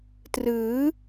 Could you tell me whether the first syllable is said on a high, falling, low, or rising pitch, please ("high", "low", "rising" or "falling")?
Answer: rising